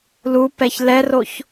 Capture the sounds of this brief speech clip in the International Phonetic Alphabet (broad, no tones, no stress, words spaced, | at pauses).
lupɛç lɛroç